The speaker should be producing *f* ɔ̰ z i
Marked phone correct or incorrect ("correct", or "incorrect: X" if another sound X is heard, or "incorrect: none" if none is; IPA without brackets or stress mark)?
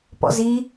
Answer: incorrect: p